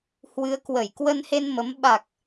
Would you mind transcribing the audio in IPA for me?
hwɨ˨˦ə̯kwə˧˩j kwə˧nhe˧nmə˨˦m ɓa˨˩k̚

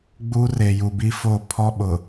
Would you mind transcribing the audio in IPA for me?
ɡ͡buː˦reː˨ ju˨bi˦foː˦˨ pʰɔ˦ ɓʊ˨

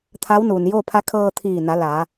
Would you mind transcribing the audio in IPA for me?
t̪ʰa˧˥wnuː˩njoː˥˨ pʰa˧˥kʰɤː˧ t̪ʰiː˧˩na˩˧ la˩˧

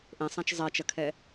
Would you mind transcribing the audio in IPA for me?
ʔẽsˤæ̃t͡ʃ zˤɛt͡ʃɐkʰɛ

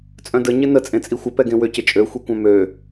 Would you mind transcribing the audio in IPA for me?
t͡sʼœ̃də ɲɪnə t͡sʼẽt͡sʼixʷə pɛɡẽwʏ cɪt͡ʃʼø xʷikʷœ̃mø

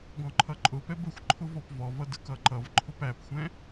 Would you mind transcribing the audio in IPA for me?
ɡɔ̃ǃʰʌǃʼʊpɛb əxʷǃʰʊ vɔpvɔvʌ dəkʌǃʌvǃʰʊp æpxʷɛ̃

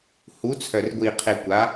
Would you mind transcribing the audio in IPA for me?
hu˨˥t͡sʰœ˨˩r ɡʷi˨˩qʰe˨˩ kʷa˨˥

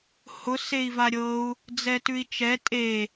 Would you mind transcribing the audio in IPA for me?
hʊ sei̯vaɾʲɤu̯ | d͡zɛtʉi̯t͡ʃɛ tʼe

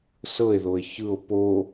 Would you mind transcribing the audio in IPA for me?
sɤe̯ðoe̯ çɯo̯ po

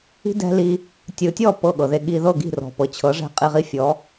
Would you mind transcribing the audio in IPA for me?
i̤˦dɛ̤˦ li˧ | tʲɯ˨tʲɔ˦˨ pɤ˦˨ɠɤ˨ðe˧ ɠi˧ðɤ˦˨ ɡi̤˦˨rɔ̤˨pɤ˨t͡ɕʰɤ˨˦ ʐɛ̤˦qʼi˧ʁi˦ fʲɔ˨˦

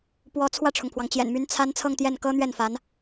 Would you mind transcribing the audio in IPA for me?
pwɔ˧˥t͡sʰwä˥˩ʈ͡ʂʰʊ˩ŋpʰwɑ˩ŋ t͡ɕjɛ̰˨˩nmy˧˥n t͡sʰa˥n t͡sʰɤ˥˧ŋt̪jɛ˥˩n kɤ˥n̪ɥɛ˥˩nfa˧˥n

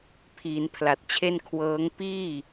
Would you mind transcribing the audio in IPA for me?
pʰiː˩˦npʰla˨˩t̚t͡ɕʰe˧n kʰwɤː˦˥ŋ piː˥˩

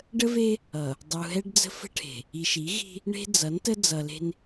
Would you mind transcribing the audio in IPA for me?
ɖə˦ve˦ | ʌ˨ | dˤu˨ɦɛ˦ɖd͡zə̤˦ fə̤˦ʈʰe̤˨ | i˨ʃi˨˦ ɣi̤˦ | ɳe̤˦d͡zʌ˨˦ntə˦ d͡zʌ˨le̤˦n

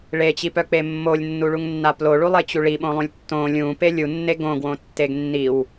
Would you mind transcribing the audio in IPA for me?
ɭet͡ɕipœk͡pe mːolʲnːuɭuŋnːa ploɭulˠet͡ɕu ɭiɓõlˠũlʲ tːõ lʲũpe lʲunːe ɡõɡwõtːeɡ nːiw

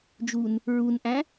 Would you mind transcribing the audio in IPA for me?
d͡ʒun | ɹunʔæ̃

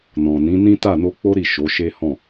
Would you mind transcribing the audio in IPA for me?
nɔ̃˨nĩ˨˦ nĩ˦ta˦˨no˧k͡po˦ ɾi˦˨ʃo˨˦ʃe˦hɔ̃˦˨

